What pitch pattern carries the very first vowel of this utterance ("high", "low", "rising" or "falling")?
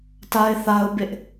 high